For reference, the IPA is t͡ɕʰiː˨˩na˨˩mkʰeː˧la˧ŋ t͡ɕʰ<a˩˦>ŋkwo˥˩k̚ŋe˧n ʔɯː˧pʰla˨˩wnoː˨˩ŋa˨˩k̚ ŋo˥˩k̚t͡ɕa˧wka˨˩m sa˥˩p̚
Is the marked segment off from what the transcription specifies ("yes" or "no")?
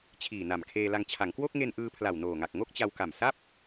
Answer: no